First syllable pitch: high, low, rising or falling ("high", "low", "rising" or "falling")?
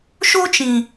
high